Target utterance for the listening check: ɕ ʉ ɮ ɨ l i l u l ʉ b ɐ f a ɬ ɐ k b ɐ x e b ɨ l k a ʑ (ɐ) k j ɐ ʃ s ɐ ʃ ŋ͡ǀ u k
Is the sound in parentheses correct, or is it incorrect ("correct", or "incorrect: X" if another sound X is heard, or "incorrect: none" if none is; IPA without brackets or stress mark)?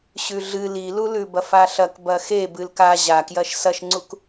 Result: incorrect: a